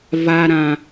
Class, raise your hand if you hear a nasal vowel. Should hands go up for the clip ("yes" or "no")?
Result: yes